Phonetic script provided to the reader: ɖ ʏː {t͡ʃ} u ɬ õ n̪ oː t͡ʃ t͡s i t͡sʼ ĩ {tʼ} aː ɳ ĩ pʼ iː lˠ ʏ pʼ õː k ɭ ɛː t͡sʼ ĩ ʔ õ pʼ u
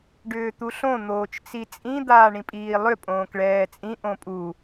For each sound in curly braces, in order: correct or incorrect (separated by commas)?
incorrect, incorrect